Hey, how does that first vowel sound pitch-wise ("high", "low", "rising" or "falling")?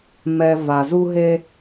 low